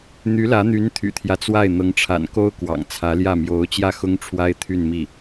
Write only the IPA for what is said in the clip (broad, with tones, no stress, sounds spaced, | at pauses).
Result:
n̪ y˧˥ l ä˧˥ n̪ y˧˥ n t̪ʰ y̰˨˩ t̪ʰ j ä˦ t͡s w a˥˩ ɪ̯ n̪ ɤ˧˥ ŋ ʈ͡ʂʰ a̰˨˩ n k o˥ ʊ̯ k w ɑ̰˨˩ ŋ t͡sʰ ä˧˥ l j ä˥˩ m j o˧˥ ʊ̯ t͡ɕ j ä˥˩ x ʊ˥ ŋ ʈ͡ʂʰ w a˥ ɪ̯ t̪ʰ y˥˧ n m i˥˩